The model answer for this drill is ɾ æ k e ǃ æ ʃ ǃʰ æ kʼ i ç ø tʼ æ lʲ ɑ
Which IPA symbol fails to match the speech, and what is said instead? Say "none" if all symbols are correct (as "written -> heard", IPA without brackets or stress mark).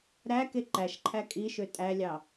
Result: ç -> ʃ